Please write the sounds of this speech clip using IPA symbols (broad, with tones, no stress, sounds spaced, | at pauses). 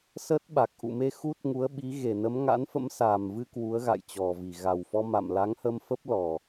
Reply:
s ə˦˥ t̚ ɓ a˨˩ k̚ ʔ ṵ˧˨ m e˧ x u˦˥ t̚ ŋ u˨˦ ə̯ ɓ i˨˦ ɣ e˧˩ n ə˨˦ m ŋ a̰˧˥ n f ə̰˧˥ m s aː˨˩ m v ɨ˧ k w u˨˦ ə̯ ɣ a̰˧˨ j t͡ɕ ɔ˨˩ v i˧˩ ɣ a˨˩ w f ɔ˧ m a̰˧˨ m l a˨˦ ŋ h ə˧ m f ə˦˥ p̚ l ɔ˨˩